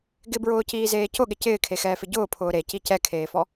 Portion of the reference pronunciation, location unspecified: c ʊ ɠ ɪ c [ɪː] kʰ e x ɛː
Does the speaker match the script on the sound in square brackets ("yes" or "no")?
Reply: yes